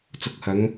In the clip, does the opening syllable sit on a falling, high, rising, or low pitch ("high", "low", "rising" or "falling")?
low